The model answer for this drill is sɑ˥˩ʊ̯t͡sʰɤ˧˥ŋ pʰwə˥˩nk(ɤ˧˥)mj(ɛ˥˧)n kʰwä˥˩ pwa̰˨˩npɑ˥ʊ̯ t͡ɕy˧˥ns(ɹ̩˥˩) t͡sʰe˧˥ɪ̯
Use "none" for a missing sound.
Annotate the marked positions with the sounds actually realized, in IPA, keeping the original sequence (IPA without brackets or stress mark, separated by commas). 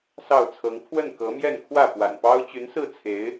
ɤ˧˥, ɛ˥˧, ɹ̩˥˩